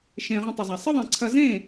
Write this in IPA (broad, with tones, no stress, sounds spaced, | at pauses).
ʃ ẽ˨ ʁ ə̃˧ tˤ ə˨ zˤ a˨ sˤ ɪ˦ ðˤ ẽ˨ ǀʰ ɐ˧ z ẽ˦˨